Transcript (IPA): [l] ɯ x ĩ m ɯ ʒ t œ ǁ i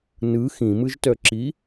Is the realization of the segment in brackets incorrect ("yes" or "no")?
yes